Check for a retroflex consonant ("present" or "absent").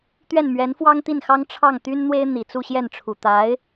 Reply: present